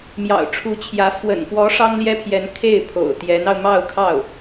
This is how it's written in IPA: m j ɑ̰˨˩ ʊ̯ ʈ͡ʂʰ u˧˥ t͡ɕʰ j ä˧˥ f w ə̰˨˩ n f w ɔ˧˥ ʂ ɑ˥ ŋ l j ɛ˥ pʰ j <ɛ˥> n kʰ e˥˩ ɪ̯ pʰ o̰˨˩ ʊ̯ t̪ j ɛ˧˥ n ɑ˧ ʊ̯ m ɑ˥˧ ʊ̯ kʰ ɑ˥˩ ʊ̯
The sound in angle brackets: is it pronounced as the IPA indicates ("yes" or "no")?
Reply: no